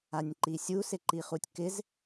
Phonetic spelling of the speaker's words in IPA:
anʲǃisʲu sɪǃiχutʲkɪz

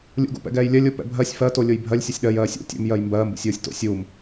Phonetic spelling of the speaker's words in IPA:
lʲṵɡṵpɛ̰ɡɛːj lʲɜlʲo pɛ̰bʱɜsʲ fɜtolʲoj bʱɜlʲsʲɜsʲ ɗɜj ɜːsʲṵ tʲo̰m jɜjmbɜːmbṵsʲ oːsʲto̰ sʲuːm

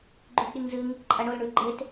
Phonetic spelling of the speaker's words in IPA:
ɡ͡ǃʉɡɗiŋzɨŋ | ǃʼɐɳol ɳʉɡ͡ǃet

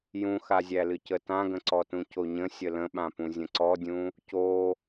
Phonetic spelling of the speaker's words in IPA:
jũxazʲælɨ cətãɡə̃ǀɔ tũcoɲə̃ sʲələ̃ɓãpũ zʲə̃ǀɔdʲũ | co

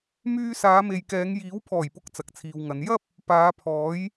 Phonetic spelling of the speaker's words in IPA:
myː˥ saː˨˧me˨jkɛː˨˧ŋ jiː˨˥wpʰɔː˨˩jpʊ˨˥k̚ t͡sɐ˨k̚t͡sʰiː˨wŋɐ˨˧n jɐ˥p̚ | paː˨˧pʰɔː˨˥j

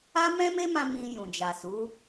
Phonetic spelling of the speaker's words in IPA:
a˦mɛ̃˦me˦mã˧ mĩ˧ jũ˨d͡ʒa˨su˨˦

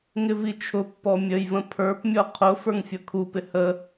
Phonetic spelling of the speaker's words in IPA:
ŋɪvit͡ʃʰʊpːɔ mʲəjvə̃ pʰə˞pmʲɔ qʰʊ fə˞ŋfʲʌkʰupɪ hə

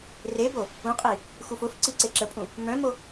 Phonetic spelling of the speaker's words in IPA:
rebo | ũqʼi | xufʊfǀi ǀeǁəpʼũ | mœ̃mo

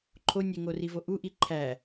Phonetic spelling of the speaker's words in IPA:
ǃʰo nʲeŋorivo ʔuʔi ǃʰæ

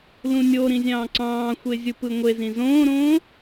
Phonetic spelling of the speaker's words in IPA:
lũnʲoɾĩ zʲɑ̃ːǀɑ̃ːxʷe zʲupɯŋʷezĩ zõːɾõː

